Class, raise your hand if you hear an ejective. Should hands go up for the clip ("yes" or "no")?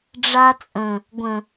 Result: yes